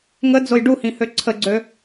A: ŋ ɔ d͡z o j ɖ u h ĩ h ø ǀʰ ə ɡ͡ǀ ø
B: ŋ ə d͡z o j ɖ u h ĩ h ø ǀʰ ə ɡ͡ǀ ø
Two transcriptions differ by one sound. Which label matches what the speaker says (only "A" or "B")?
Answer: B